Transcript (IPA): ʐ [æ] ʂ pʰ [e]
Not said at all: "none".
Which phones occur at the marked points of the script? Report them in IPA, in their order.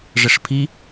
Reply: ə, i

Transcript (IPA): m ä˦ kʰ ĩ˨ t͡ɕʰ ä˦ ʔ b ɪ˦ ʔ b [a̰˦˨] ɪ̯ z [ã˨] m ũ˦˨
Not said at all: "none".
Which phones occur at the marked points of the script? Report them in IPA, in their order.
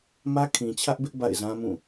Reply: a̰˦˨, ã˦

